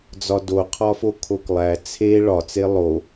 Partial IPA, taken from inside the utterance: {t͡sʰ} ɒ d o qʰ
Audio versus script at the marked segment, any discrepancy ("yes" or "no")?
yes